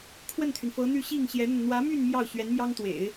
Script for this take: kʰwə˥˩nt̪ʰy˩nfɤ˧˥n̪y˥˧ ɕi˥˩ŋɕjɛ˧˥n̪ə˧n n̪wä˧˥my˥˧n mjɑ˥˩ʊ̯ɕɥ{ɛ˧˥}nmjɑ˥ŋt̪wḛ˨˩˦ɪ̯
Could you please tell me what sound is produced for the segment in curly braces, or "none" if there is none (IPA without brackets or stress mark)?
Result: ɛ˧˥